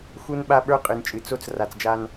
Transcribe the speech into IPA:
x u˦ n ɓ a˦ ɓ ə˞˦ qʼ ɨ˨ n t͡ʃʼ ɨ˨ t͡s o˦ t͡s r a˨ t͡s d͡ʒ a˦ n

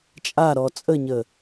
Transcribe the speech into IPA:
t͡ʃʼ a ɾ ɔ t͡sʼ ə ɲ ə

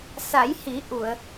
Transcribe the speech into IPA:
s a˨˩˦ j h i˨˩˦ ʔ u˨˩˨ ə̯

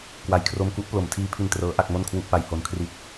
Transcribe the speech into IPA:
k w a˨˩ j kʰ r o˧ m k u˦˥ ʔ p l o˨˩ m tʰ iː˧ pʰ i˧ n t r ɤː˦˥ ʔ a˥˩ k̚ m o˥˩ n kʰ w u˥˩ ʔ p a˧ j h o˧ n kʰ r i˦˥ t̚

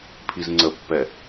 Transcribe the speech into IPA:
pʰ i z ŋ͡ǀ ə pː ɛ

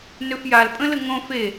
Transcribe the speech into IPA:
n ø f j a l pʼ ə̃ l ə ŋ õ f e

